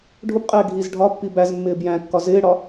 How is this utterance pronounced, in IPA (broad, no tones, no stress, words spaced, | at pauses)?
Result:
ɖʱʊbqʼɛː ɡʱiz ɖʱɒpːi bæzmːɪː bjæ̃kːɒ zɪːɽɒ